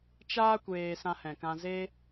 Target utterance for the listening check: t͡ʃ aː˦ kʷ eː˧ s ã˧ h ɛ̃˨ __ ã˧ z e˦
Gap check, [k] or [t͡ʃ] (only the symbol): k